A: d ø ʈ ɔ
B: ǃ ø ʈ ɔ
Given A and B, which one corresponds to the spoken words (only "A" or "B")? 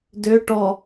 A